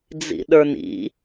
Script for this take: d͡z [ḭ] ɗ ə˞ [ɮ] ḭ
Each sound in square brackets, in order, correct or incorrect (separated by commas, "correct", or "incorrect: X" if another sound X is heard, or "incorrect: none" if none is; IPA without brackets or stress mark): correct, incorrect: n